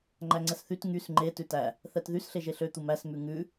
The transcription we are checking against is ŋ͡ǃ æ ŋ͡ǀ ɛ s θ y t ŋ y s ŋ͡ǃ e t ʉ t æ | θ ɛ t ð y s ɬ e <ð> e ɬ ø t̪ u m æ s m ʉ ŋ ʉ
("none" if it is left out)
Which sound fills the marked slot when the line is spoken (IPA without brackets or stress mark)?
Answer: ʒ